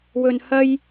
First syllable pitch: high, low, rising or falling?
low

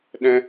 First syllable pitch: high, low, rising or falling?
high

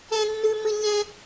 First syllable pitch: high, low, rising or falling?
high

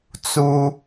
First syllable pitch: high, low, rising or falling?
high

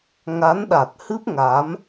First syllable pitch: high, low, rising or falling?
rising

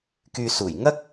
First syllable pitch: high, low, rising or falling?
low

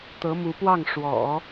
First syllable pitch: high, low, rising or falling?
rising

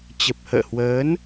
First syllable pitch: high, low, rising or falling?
low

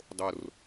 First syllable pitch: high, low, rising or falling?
low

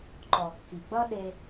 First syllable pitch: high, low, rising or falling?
low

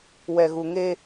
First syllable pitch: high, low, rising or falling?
low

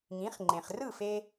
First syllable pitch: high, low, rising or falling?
rising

